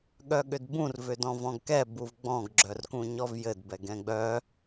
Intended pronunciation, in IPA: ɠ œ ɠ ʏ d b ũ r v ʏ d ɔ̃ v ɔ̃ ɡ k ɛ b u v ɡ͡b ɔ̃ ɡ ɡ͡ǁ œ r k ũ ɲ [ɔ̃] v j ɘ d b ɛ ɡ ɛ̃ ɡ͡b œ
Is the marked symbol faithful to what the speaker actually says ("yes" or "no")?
no